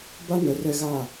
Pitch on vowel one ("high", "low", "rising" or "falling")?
high